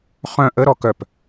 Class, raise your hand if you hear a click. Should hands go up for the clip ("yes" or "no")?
no